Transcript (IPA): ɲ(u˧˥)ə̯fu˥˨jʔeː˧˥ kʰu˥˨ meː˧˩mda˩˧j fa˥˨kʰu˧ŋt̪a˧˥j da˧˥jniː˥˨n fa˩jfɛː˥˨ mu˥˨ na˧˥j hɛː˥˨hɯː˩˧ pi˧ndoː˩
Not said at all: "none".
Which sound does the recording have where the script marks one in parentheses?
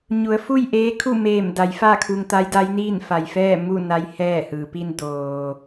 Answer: u˩˧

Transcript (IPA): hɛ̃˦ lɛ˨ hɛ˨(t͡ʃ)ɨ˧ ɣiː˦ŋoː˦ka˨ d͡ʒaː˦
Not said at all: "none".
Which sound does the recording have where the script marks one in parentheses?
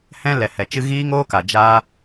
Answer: t͡ʃ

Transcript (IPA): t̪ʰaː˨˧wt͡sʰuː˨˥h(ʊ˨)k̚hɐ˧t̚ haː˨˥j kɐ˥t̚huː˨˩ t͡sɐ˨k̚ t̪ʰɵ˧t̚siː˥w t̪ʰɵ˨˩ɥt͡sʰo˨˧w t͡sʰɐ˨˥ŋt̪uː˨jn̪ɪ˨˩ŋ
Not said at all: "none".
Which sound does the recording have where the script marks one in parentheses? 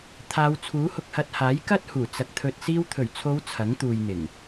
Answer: ʊ˨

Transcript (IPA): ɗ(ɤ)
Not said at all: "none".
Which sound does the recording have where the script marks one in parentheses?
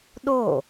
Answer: o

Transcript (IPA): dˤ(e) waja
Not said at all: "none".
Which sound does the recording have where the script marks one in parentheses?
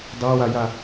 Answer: e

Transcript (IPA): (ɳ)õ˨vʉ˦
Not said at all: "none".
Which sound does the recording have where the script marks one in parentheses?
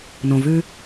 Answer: n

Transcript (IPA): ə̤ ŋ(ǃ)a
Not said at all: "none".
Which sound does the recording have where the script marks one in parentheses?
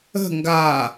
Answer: ɡ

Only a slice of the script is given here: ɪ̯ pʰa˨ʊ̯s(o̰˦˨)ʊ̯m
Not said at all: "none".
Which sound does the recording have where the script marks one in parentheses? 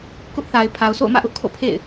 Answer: o̰˦˨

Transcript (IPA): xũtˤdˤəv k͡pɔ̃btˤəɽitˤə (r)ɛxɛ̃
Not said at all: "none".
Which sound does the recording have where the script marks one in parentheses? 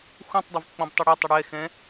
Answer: ɽ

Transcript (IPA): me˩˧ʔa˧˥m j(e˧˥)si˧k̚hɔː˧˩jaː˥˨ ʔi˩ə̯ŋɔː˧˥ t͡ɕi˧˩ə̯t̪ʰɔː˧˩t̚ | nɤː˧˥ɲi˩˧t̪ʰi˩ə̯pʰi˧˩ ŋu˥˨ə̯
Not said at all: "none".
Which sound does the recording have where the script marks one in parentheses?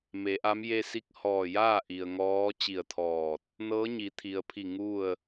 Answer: e˧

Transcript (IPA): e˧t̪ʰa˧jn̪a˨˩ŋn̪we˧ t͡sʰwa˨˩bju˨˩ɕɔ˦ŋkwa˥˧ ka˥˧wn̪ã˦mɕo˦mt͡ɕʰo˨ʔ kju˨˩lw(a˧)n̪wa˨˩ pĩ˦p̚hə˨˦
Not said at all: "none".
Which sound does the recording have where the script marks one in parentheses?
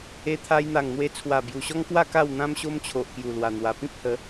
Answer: a˨˩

